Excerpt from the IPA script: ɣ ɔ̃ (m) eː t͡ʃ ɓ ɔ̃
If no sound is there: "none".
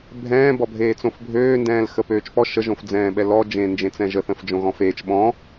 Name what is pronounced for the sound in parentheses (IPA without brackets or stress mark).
f